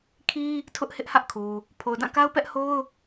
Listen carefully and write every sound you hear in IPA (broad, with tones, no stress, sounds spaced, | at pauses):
kʰ i˦ | tʰ ʊ˦ ʔ h ɪ˦ ʔ h ä˦ ʔ kʰ u˨ | pʰ o˨ ʊ̯ d ã˦˨ k a˦ ʊ̯ p ɛ˦ ʔ h o˦ ʊ̯